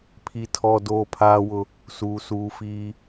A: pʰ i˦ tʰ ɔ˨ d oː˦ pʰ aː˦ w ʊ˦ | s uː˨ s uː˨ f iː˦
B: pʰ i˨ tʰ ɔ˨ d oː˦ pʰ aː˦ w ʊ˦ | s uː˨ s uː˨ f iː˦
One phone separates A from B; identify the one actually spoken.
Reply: B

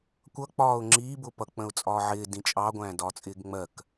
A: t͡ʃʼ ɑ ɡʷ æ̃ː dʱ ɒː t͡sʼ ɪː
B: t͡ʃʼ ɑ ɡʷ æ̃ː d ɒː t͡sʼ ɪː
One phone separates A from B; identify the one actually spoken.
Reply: B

